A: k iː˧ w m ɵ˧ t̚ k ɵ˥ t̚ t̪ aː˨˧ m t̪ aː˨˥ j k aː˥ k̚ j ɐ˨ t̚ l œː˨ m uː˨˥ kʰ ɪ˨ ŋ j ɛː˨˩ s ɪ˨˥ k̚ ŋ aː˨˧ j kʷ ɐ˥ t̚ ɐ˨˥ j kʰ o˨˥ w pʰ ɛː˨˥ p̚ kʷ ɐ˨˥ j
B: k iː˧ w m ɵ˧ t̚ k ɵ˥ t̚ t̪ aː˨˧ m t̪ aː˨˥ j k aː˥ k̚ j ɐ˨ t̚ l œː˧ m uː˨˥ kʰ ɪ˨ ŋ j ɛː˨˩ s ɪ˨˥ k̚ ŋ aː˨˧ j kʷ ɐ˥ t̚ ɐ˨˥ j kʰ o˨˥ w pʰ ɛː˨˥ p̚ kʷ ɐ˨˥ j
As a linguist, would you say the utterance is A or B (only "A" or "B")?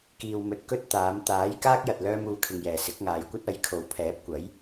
B